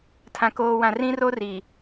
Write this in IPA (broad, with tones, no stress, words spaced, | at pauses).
tʰã˨koː˨wã˨ rĩ˦ro˦ri˨